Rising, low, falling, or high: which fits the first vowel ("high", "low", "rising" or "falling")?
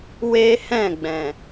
high